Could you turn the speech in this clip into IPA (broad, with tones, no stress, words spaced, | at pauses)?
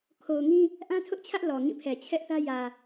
kʰo˨ʊ̯ŋĩ˦ | ʔã˦tʰʊ˦ʔt͡ɕʰä˦ʔ lɔ˨ŋĩ˦˨pʰɛ˨ t͡ɕʰɛ˦ʔθä˦ jä˨